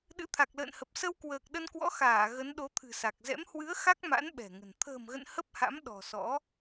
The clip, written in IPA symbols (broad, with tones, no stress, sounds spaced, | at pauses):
ɗ ɨ̰˧˥ t̪ʰ a˨˩ k̚ l ə̰ː˧˨ n h ə˨˩ p̚ s ə˧ w k w əː˨˩ k̚ ɗ ə˧ n k w ɔ̰˧˥ x aː˧˩ ɣ ə˨˦ n ɗ o˨˦ t̪ʰ ɨ̤˨˩ s a˨˩ k̚ z ɛ̰˧˥ m h w ɨ˨˦ ə̯ x a˦˥ k̚ m a̰˧˥ n ɓ ɛ̤˨˩ ŋ ə̤˨˩ n t̪ʰ ə̤ː˨˩ m ɣ ə̰˧˨ n h ə˦˥ p̚ h a̰˧˥ m ɗ ɔ̤˨˩ s ɔ̰˧˥